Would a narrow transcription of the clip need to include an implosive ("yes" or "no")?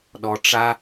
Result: yes